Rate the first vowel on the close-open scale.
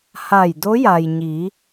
open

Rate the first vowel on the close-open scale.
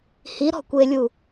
close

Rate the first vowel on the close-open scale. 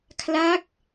open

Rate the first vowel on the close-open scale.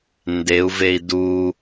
mid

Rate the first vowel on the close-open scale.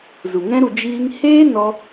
close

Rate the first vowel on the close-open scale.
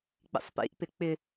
close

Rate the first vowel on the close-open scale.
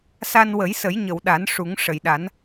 open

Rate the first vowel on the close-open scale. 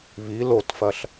close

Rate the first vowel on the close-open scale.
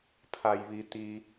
open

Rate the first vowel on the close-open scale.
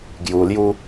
close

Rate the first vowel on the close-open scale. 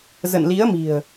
mid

